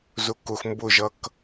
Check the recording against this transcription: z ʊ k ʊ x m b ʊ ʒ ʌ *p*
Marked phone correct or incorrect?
incorrect